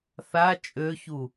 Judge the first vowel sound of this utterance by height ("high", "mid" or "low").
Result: low